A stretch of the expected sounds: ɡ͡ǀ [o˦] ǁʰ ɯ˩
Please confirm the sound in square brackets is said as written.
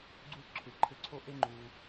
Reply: no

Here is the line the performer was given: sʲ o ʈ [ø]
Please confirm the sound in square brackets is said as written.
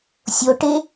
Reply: no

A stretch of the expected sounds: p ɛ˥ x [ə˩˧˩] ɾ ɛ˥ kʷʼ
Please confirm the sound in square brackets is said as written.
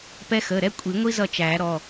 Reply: yes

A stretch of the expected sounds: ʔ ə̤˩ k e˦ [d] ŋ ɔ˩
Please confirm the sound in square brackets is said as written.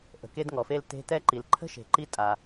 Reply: yes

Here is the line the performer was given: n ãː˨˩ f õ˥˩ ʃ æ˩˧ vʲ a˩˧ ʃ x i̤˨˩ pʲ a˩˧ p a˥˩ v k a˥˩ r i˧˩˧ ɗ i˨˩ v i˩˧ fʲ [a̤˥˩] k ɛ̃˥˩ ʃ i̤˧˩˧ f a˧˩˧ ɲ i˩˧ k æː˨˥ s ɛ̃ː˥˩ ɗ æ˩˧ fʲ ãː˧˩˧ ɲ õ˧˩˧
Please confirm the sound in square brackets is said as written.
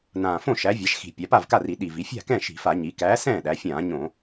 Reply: yes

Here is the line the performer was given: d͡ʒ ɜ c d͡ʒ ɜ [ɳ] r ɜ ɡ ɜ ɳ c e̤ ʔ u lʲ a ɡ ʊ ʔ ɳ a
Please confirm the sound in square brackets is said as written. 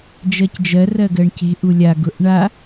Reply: no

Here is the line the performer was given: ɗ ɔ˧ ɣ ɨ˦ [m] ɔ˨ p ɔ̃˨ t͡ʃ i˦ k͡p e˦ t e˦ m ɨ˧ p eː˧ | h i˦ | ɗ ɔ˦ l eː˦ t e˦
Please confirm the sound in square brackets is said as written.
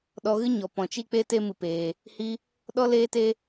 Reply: no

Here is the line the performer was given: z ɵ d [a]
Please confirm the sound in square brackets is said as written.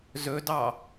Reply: no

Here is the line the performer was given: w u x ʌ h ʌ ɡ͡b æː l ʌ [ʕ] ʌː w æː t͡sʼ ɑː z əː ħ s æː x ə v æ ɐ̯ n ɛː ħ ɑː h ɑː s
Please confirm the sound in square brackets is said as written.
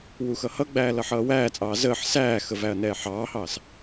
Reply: no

